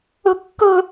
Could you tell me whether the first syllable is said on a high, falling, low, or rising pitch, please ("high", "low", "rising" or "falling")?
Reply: high